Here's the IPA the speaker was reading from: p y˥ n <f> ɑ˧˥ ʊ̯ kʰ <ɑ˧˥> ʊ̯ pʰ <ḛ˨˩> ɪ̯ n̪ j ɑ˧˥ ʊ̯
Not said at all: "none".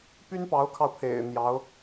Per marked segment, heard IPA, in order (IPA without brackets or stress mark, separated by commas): p, ɑ˧, ḛ˨˩